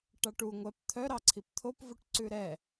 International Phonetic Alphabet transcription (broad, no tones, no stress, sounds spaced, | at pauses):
ʈ ɑ ʈ u ŋʷ ɛ p t̪ʰ œ ɾ ɑ ǀʰ i p t̪ʰ o p v u ʈ ǀ ʉ ɾ ɛ